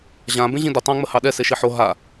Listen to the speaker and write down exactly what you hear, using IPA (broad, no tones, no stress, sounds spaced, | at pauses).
ʑ ã b ẽ ʑ ĩ d ə tˤ ã ŋ͡m ə h ɑ ɗ ɛ s e ʃ i ħ o ɦ a